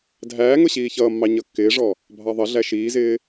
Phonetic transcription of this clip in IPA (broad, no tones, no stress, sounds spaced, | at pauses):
dʱ æː ŋ ʊ ɕ iː ç ʌː mː ɑ ɲ ʌ kː ɪː ʐ ɔ | bʱ ɑ ðˤ ʌ ɮ æ ʃ iː z ɪː